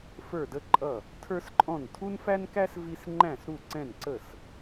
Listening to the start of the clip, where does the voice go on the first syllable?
falling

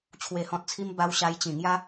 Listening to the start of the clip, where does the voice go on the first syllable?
low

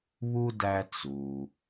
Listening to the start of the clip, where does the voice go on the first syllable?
high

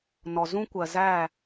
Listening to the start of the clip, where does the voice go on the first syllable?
low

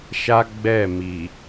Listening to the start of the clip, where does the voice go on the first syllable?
high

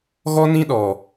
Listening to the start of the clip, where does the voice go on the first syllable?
high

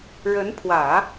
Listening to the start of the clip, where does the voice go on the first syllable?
rising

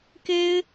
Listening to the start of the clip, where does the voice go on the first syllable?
high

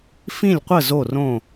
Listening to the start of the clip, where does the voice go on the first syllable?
falling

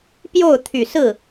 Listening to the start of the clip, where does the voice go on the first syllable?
falling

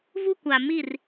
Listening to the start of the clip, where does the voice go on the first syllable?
high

